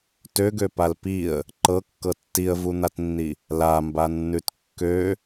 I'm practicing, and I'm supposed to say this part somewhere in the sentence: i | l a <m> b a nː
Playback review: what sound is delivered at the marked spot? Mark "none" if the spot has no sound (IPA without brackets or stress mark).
m